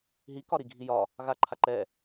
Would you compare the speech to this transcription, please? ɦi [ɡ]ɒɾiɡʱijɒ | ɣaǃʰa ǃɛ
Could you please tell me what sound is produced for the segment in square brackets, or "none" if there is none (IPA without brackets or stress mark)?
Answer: k